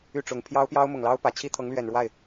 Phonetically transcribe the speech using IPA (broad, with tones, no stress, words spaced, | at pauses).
y˥˩ʈ͡ʂʊ˨˩ŋ pʰjɑ˥ʊ̯pjɑ˥ʊ̯mʊ˨˩ŋ lɑ˥ʊ̯pä˨˩ t͡ɕʰi˥t̪ʰɤ˧˥ŋlɥɛ˨˩nɻwa˥˩ɪ̯